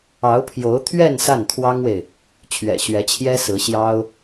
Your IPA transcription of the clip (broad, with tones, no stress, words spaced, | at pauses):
ɑ˧˥ʊ̯pʰjo˧˥ʊ̯t̪ʰɥɛ˥˧n sa˥˩nt̪ʰwɑ˥ŋwe˨ɪ̯ | t͡ɕʰɥɛ̰˨˩ɕɥɛ˧˥t͡ɕʰjɛ˥ sɹ̩˧˥ɕjɑ˥ʊ̯